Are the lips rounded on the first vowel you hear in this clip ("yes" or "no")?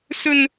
yes